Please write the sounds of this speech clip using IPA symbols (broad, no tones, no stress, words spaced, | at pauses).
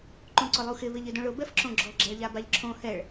ǃũǀʊlˠuxɪ βɪʎɪdõɭʊ bɛfǁõɡ͡ǁɔ ɡ͡ǁaɭʎabaʎǁʰõ hɛɭ